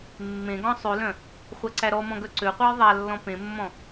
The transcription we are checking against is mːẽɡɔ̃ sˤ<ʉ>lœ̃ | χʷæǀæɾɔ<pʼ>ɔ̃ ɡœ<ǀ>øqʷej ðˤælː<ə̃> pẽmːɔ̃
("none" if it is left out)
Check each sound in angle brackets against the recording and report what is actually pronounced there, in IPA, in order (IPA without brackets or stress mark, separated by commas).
ʉ, m, ǀ, ɔ̃